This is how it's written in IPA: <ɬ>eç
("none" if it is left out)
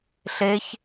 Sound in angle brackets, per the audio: ɬ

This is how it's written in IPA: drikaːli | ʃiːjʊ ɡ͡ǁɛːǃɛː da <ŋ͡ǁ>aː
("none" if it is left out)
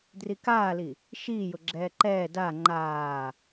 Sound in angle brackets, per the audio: ŋ͡ǃ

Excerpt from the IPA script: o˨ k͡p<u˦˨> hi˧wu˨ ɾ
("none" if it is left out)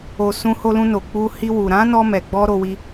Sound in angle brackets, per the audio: u˧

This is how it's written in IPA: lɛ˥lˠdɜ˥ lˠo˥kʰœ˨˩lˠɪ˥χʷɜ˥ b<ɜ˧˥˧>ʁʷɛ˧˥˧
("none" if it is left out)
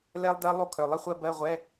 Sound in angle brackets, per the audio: ɜ˧˥˧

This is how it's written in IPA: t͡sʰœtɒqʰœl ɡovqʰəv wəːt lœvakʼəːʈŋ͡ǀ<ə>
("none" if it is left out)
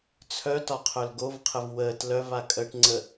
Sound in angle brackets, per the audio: ə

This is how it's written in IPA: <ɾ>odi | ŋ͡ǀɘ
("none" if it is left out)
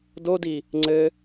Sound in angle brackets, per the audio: d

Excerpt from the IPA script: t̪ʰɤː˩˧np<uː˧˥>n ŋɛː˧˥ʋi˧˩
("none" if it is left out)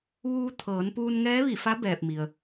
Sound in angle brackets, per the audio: uː˧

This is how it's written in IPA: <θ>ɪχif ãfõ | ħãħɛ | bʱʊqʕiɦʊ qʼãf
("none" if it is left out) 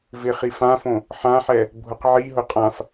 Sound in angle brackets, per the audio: v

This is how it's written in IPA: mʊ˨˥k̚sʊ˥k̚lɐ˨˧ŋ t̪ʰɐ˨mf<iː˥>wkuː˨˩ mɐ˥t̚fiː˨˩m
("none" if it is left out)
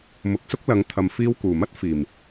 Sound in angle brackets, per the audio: iː˧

